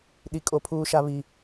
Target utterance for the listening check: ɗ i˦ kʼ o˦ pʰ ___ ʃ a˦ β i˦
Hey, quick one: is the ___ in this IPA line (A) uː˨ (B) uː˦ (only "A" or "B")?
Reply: B